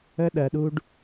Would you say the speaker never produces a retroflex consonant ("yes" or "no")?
no